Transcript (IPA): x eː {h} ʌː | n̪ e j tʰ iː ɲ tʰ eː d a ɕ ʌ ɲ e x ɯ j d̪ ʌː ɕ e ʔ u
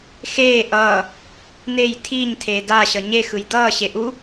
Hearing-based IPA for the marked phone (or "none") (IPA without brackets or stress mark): ʔ